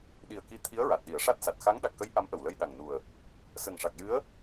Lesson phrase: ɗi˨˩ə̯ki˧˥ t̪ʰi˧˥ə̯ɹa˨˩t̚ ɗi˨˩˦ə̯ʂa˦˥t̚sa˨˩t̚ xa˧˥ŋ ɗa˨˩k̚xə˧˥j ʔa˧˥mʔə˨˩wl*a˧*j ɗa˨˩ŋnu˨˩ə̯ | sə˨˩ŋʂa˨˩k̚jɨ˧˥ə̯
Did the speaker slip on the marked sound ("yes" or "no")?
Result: yes